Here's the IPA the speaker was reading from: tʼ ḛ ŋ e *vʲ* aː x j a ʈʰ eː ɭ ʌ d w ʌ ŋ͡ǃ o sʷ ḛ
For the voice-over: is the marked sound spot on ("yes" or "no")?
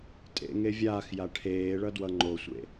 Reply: yes